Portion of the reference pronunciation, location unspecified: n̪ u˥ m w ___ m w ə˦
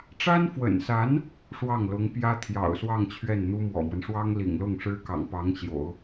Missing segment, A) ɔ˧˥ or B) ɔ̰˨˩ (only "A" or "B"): B